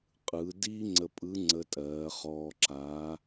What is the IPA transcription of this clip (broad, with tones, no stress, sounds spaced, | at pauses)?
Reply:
qʼ ɯː˩˧ d iː˥ ŋ͡ǀ ə˧ pʼ ɯ˧˥ ŋ͡ǀ ə˧ tʼ ɜː˩˧ χ ɔː˧ ǁ aː˧˥